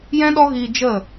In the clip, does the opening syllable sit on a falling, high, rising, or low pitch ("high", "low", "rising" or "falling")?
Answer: high